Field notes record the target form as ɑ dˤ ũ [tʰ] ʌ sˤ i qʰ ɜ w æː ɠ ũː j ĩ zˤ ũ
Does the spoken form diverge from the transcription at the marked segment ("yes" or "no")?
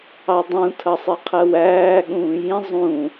no